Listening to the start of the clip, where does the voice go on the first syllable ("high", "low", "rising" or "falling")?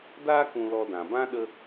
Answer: high